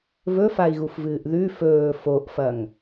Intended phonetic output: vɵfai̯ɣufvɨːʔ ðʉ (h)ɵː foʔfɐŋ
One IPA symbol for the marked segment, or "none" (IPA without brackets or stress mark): f